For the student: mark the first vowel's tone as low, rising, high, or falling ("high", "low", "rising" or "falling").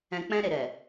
low